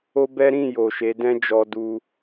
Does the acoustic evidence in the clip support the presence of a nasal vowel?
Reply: yes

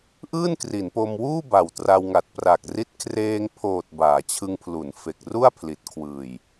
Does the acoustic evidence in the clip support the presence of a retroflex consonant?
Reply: no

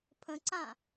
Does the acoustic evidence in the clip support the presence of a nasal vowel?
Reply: yes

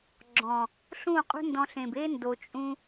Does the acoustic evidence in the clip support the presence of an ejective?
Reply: yes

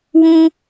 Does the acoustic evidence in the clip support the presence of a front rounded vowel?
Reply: no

